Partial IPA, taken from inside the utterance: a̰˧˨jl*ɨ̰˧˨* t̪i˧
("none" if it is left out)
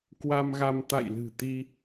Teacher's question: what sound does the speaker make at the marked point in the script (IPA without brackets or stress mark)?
ɨ̤˨˩